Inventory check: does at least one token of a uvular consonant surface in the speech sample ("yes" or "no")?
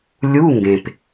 no